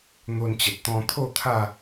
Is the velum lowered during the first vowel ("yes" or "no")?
no